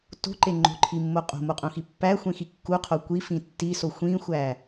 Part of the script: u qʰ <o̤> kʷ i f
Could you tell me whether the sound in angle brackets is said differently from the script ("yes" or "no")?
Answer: yes